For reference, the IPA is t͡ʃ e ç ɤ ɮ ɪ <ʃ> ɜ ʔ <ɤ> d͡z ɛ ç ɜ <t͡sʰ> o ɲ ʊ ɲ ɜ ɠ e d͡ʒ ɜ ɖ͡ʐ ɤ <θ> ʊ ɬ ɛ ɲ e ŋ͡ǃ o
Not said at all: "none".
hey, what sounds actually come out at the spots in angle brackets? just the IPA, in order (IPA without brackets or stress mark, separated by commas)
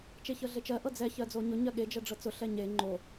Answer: t͡ʃ, ɤ, d͡z, t͡s